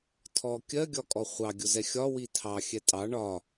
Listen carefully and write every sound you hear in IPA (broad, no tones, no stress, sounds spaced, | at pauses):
tʰ ɔ kʲ ɜ ɡʲ ɒ kʼ ɔ χʷ ɑ ɡʲ ʊ z ɛ xʲ ɒ w i tʰ ɑ xʲ ɛ tʼ ɑ ɳ ɒ